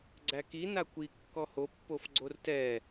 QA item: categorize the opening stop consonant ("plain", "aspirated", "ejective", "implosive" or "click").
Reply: click